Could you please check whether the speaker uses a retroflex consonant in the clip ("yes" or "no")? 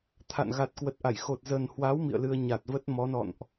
no